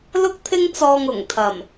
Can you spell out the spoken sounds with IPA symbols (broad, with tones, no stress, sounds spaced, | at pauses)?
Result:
l ʊ˥ k̚ t̪ʰ ɪ˥ ŋ t͡s ɔː˧ ŋ ʊ˨˩ ŋ t̪ʰ ɐ˨˩ m